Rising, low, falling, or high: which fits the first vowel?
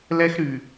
high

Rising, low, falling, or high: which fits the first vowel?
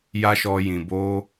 high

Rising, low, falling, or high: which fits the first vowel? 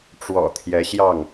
low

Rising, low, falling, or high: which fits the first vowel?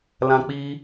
high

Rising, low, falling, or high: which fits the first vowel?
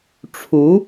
rising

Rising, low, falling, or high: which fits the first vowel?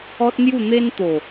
high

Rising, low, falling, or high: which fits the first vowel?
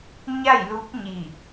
falling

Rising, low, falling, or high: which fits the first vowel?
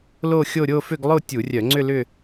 falling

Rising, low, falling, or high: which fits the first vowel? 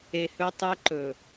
low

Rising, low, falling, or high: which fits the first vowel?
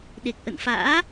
low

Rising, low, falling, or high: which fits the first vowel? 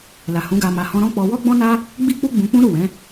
low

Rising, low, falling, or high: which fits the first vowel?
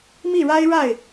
falling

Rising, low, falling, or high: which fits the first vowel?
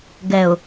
low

